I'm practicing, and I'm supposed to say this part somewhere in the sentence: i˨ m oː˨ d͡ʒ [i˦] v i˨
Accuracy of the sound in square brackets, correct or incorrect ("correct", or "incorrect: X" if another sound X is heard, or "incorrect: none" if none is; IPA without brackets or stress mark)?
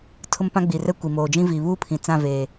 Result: incorrect: ĩ˦